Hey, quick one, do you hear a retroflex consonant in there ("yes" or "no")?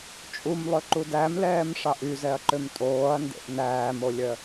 yes